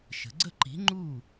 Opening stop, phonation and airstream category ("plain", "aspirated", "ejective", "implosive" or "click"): click